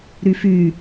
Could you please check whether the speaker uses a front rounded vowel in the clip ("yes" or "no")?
yes